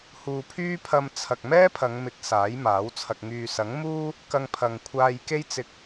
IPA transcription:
huː˨pʰyː˥pʰɐ˧m t͡sʰɐ˨k̚mɛː˥pʰɐ˨˧ŋmɪ˨˥k̚ saː˨˥jmaː˨˥wt͡sʰɐ˧k̚ ŋyː˨sɐ˨˥ŋ muː˥ | kɐ˧ŋpʰɐ˨ŋkʷʰaː˧j ke˥jt͡sɪ˧k̚

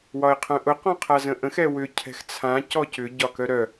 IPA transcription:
wɒɪ̯qʰœ̃ʔʊ qɔ̃qʰazə̃ʔə̃x ɛwʏ cʰɛ̤xt͡sʰã cɔcʏ ɟɒkœɾœ

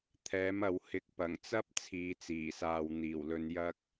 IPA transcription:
t̪ʰɛː˨˥mɐ˨w hɪ˨˥k̚pɐ˨˩ŋt͡sɐ˥p̚ t͡sʰiː˨˧t͡siː˨˩saː˨w n̪iː˨˩wlɵ˧njɐ˥k̚

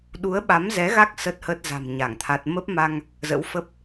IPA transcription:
ɗu˨˦ə̯ɓa˨˦mzɛ˨˦ɣa˦˥k̚ sə˦˥t̚hə˦˥t̚za̤˨˩m ɲa˧˩ŋt̪ʰa˦˥t̚ mə˦˥p̚ma˧ŋ | zə̰˧˥wfə˦˥p̚

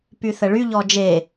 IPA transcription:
pyθəɭyʎɔ d͡ʒe

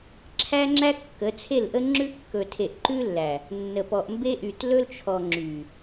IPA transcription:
ǁʰæ˦ŋ͡ǁæ˦ kːə˨˦t͡sʰe˦˨lʔə˦ŋ͡ǁʉ˦ kːɵ˨tʰe˨ʔ ǃʉ˦lːæ˨ | nːə˨pɔ˨ʔ mbe˦ʔy˨tlɵ˦lt͡ʃʰɔ˨ ŋ͡ǁy˨

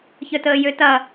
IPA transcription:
çœtəːjøtɐ

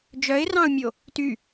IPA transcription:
d͡ʒœɪ̯rɑ̃ʊ̯mʲo | ty

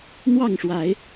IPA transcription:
n̪wɑ˥˨ŋʂwa˨˦ɪ̯

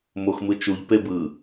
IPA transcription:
moxmɯt͡ʃuʎ pebɯ

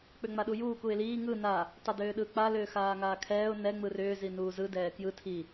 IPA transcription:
k͡pʏŋ͡maɗujuːk uɪ̯liː ŋɯ na | tˤɛdʏːɗɯːk͡pa lʏːxaːŋaːkʰɛːʊ̯ nɛ ŋ͡mɯrʏː zinuːzɯ dɛːkjɯ tʰi

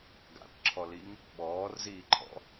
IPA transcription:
ɡa̰tǁʰɔliŋ | ɓɔːrziːǃʰɔ̰

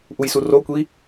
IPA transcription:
ʔujsurokʷi

